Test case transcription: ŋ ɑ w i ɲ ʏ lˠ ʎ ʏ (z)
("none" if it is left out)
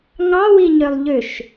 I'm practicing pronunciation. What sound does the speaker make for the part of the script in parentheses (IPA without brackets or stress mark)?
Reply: ʃ